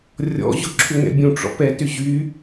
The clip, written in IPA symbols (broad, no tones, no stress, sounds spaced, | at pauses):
rʲ ɔ̰ ʑ ʊ ǁʰ ʏ ŋ ɛ̰ bʲ ũ ʈ͡ʂ ɔ̰ p ɛ t ʏ ʑ y